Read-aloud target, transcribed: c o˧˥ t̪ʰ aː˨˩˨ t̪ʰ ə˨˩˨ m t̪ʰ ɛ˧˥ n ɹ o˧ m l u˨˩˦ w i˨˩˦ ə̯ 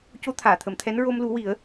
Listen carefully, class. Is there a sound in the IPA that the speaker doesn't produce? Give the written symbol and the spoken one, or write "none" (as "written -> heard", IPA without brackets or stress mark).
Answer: none